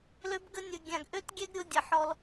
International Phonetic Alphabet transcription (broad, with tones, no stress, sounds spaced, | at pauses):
l ø˧ b ɡ ə˧ nʲ ə˨ ɡʲ ã˨ ɡ ʔ ø˦ t ɡʲ ɛ˦ ɡ ɾʲ o˧ dʲ ə˨ ħ ɔ˧ l